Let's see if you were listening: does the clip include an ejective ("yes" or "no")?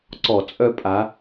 yes